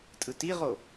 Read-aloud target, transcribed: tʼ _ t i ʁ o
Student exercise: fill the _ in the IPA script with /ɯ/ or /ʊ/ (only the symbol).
ɯ